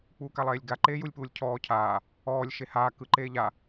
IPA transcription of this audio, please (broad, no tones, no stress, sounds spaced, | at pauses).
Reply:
k͡p uː k a lˠ eː lʲ ɡ a ǃ eː j u lʲ p uː lʲ cʰ ɔː cʰ aː | ɔː lʲ ʃ e h aː k ɯ ǃ eː ʎ a